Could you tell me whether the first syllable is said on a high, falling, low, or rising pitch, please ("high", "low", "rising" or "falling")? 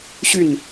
falling